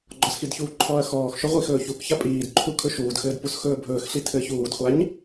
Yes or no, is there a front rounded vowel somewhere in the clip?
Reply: no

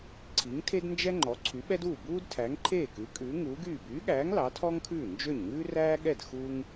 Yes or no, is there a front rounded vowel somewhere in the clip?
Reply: yes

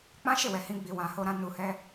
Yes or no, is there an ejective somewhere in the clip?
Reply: no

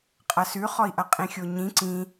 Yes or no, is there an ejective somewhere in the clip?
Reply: yes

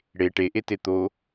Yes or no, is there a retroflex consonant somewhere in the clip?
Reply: yes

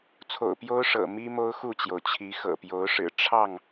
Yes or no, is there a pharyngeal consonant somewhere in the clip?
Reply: no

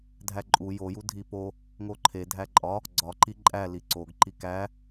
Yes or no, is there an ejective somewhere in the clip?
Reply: yes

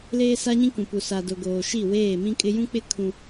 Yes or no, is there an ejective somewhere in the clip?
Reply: yes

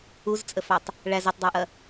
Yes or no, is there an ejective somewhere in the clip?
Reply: yes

